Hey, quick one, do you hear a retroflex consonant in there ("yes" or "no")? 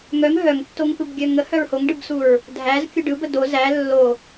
yes